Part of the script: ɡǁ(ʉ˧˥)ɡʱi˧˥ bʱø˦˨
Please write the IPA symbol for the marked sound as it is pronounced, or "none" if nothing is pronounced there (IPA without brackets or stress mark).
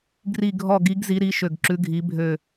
ʉ˧˥